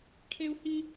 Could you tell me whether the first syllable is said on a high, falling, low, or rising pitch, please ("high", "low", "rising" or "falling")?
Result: high